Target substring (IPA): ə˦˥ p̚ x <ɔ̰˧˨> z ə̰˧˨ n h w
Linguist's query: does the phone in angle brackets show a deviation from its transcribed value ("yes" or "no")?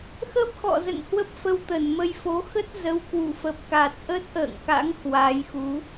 no